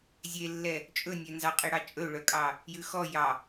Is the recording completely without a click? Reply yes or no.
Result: yes